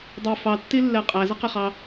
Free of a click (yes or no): yes